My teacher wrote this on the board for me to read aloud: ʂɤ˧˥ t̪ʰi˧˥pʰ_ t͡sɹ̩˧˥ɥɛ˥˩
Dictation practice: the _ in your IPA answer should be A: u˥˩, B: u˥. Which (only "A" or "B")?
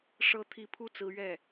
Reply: A